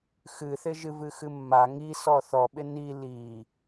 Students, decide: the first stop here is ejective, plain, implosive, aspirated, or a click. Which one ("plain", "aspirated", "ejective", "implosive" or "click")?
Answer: implosive